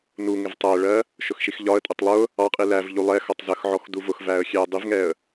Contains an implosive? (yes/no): no